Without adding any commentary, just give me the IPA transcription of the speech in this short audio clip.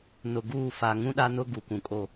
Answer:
nʊ˨ɡuː˦˨fa˨ ŋũ˦ɗa˦nʊ˦ ɡu˨kũ˨kʼo˦

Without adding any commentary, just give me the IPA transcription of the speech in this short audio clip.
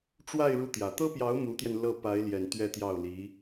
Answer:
ʈ͡ʂwa˥˧ɪ̯ ɻu˥˩t̪jä˨˩ t̪ɤ˥pjɑ˧˥ʊ̯ mu˧˥t̪jɛ˧n lɤ˥˩ pa˧˥ɪ̯ljɛ˨˩n t̪ɥɛ˥˧t̪jɑ˥˩ʊ̯li˧˥

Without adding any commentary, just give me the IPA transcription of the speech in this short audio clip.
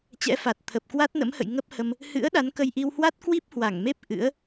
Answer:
t͡ɕɛ̰˧˥ fa˨˩t̚t̪ʰə˨˩p̚ kwa˦˥t̚nə̰˧˥mhə̰˧˨j ŋə˦˥p̚hə˧m | hɨ̰˧˥ə̯ ɗa˨˦nkə˧jʔi˧w hwa˦˥t̚kwi˦˥p̚ hwa˧˩ŋme˦˥p̚ ʔɨ̰˧˥ə̯

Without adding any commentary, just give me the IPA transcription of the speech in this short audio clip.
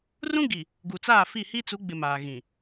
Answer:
rũ˦ɡi˨ | ɡu˨t͡saː˦˨fi˦˨hi˦ t͡su˨˦ɡ͡bɪ˨ maː˨ɣĩ˨

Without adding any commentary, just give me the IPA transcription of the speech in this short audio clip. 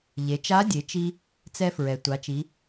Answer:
ʎe˩˧t͡ʃa˧˥ dʲe˩˧t͡ʃi˧ | t͡sɛ˧fɹɛ˩ tʷa˩˧t͡ʃi˩˧

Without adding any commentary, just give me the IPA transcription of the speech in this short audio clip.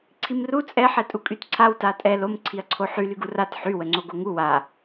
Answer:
ǀʰimru t͡sʼɛ ħɛtʼukʼytǀʰaw tatʼɛ lom ǀʰiɐ̯ǀʰoħy lyɡurat ħy wəŋ͡ǀoɡoŋu wa

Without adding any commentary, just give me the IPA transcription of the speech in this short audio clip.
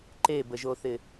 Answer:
ǃebəʒoθɪ

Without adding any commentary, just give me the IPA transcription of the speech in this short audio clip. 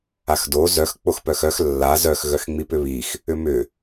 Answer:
axdo zœx k͡poxpœxœx lːa zœx ɣœxŋ͡mipʏβix | ʏmʏ

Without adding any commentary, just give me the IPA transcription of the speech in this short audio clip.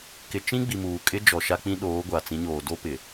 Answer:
kɪ˨t͡ʃĩ˦ ɡ͡bi˨muː˨kʼɪ˦d͡ʒɔ˨ ʃa˦k͡pĩ˦ ɗoː˨˦ɡʷa˨t͡sĩ˨˦ɲoː˨ do˦pɪ˨

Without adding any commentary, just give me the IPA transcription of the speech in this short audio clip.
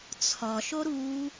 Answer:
t͡sʰɒʃo ɾu

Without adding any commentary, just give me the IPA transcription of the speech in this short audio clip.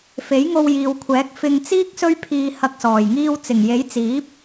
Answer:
fe˨˥jŋo˧wjiː˨wkʷʰɛː˨˥k̚ fɪ˧ŋt͡siː˥k̚ sɵ˥ɥpʰiː˧hɐ˧k̚sɔː˨˩j ŋiː˧wt͡sɪ˨˩ŋje˨˥jt͡siː˨˥p̚

